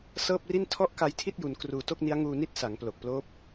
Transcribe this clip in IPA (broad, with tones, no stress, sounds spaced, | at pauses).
s ɤː˥˩ p̚ r i˥˩ n tʰ ɔ˥˩ ʔ k a˧ j tʰ i˥˩ t̚ j u˧ n k r uː˧ t o˥˩ k̚ n i˦˥ a̯ ŋ uː˧ n i˥˩ t̚ s a˩˦ ŋ p l o˨˩ k̚ p l oː˦˥ p̚